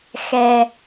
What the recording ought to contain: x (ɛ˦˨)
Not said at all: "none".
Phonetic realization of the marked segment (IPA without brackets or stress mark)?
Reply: ɛ˩